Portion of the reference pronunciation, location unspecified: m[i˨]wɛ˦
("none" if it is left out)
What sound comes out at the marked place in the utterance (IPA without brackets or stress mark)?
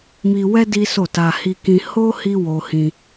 i˧